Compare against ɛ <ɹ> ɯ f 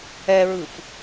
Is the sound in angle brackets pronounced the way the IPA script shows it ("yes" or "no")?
yes